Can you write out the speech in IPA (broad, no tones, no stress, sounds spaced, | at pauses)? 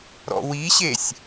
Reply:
ɾ ɔ̰ w i ɕ e sʲ